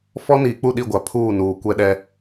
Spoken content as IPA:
f ɔ˦ n iː˨ k͡p u˦˨ ɗ i˦˨ ɡʷ a˨ pʰ uː˦˨ n uː˨ kʷ ɛ˦ ɗ ɛ˦

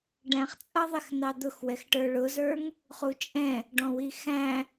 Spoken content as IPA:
ɖ æ̃ χ t͡sʼ ʌ ðˤ ɪ x n̪ ɑ d̪ ʊ x w ɛ x ʈ ə˞ ɭ ʊ z ə˞ ŋ | χ u t͡ʃʼ ɛ̃ | ɖ ɔ̃ w i x æ̃

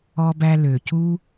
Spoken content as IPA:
ɔ˧ b æ˧ l ø˩ c u˧

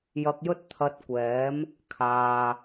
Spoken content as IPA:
j ɐ˧ k̚ j ɵ˥ t̚ t̪ʰ ɐ˧ t̚ kʷ ɛː˨˥ m | kʰ aː˧

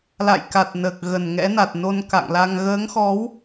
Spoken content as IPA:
l a̰˧˨ j k a˨˩ t̚ n əː˨˩ k̚ ɣ ə˧˩ n ŋ ɛ̰˧˥ n a˨˩ t̚ n o˧ n k a̰˧˨ ŋ l a˧ ŋ ɣ əː˨˦ ŋ x ɔ˨˦ w

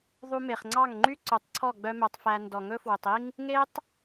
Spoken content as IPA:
ðˤ u˧ m e˨ χ ŋ͡ǀ ɑ˦˨ ŋ ŋ͡ǃ y˦ ǀ ɵ˨˦ tˤ ǀʰ ɔ˦˨ ɡ͡b œ˦ m œ˧ tˤ f æ˧ n d ɔ˨ ŋ ɵ˦ f w ɵ˨ tˤ i˦ ŋ | ŋ e˦ tˤ

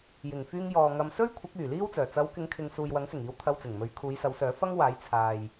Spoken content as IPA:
j ɪ˨˩ ŋ f yː˧ ŋ j ɔː˨ ŋ ɐ˧ m s ɵ˥ ɥ kʷʰ ɐ˨˥ k̚ yː˨˩ l iː˥ w t͡s œː˨˩ t͡s ɐ˨˧ w k ɪ˨˧ ŋ kʰ ɪ˨ ŋ s uː˨ j w ɐ˨˥ ŋ s ɪ˨˩ ŋ iː˨˧ w t̪ʰ ɐ˧ w t͡s ɪ˨˩ ŋ m ɵ˨˥ ɥ kʰ uː˨˧ j s ɐ˨˧ w s œː˨˥ f ɐ˥ ŋ w aː˨˥ j t͡sʰ aː˨ j

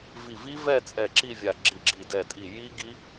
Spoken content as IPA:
v i˧˩ v i˦˥ v ɛ˥˨ t͡sʼ ɛ˧˩ ǁ i˥˨ vʲ a˧˩ ɡ͡ǁ i˧˩ ɡ͡ǁ i˧˩ d ɛ˧˩ tʼ i˧˩ j i˦˥ ɡ i˦˥

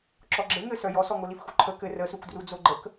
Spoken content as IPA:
ǁ ɔ ɡ͡ǁ ɘ ŋ ɘ s œ j ɔ s ɔ ŋ o l i f x u ǃʰ ə k ɘ r ə s u k d r u d͡z o ɡ͡ǃ ə k

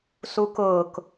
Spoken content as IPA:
s u k ʊː k

